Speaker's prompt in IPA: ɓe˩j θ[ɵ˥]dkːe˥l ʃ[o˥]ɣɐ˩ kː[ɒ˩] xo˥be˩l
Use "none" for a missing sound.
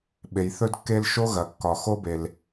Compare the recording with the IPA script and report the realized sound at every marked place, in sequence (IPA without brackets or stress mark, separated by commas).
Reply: ɵ˥, o˥, ɒ˩